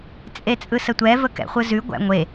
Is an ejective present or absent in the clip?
present